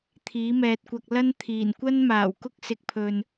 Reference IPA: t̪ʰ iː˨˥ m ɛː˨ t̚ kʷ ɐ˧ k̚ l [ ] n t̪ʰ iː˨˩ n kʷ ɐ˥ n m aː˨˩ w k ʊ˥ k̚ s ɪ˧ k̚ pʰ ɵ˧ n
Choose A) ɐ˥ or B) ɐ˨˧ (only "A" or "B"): A